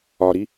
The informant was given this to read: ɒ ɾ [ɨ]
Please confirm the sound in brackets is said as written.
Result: no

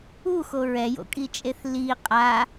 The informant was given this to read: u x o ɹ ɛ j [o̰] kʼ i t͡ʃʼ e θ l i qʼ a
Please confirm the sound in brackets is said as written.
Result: yes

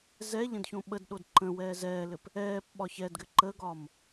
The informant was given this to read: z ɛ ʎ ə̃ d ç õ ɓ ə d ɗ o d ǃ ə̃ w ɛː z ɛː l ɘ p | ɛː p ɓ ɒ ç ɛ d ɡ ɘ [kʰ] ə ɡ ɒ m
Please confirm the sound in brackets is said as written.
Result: no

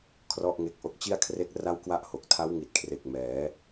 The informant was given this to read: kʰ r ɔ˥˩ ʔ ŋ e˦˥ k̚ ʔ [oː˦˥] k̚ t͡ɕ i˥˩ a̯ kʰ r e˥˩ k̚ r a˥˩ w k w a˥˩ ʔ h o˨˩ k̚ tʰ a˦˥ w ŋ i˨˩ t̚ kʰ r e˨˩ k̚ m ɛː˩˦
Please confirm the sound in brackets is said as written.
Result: no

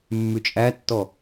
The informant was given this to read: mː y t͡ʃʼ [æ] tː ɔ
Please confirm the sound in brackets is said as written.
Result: yes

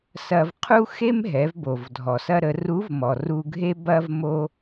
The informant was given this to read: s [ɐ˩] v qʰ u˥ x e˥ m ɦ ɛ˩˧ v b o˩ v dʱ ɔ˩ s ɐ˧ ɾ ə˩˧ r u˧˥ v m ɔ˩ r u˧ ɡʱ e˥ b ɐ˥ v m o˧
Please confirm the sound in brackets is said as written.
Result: no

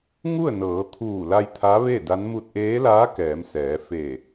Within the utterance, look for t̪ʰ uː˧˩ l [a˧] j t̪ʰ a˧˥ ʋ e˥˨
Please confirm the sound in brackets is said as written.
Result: yes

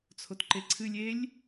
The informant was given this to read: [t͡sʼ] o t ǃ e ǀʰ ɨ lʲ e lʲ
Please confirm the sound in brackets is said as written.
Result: no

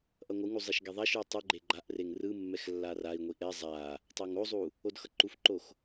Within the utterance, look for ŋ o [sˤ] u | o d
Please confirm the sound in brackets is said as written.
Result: no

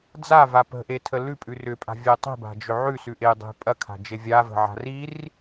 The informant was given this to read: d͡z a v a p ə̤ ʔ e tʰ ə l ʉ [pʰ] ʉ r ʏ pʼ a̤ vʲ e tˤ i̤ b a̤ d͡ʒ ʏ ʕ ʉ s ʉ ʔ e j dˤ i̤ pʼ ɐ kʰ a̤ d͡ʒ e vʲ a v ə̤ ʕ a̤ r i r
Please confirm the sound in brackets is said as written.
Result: no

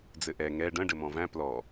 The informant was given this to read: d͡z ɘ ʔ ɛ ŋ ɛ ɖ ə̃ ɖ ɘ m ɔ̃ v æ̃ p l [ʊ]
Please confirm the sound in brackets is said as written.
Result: no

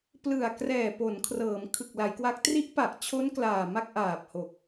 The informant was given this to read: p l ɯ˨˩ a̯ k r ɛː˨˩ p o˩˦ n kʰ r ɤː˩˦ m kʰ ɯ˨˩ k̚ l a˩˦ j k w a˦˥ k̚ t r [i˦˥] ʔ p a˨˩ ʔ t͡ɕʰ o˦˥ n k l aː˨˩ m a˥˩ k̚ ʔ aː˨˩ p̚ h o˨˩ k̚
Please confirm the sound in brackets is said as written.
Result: yes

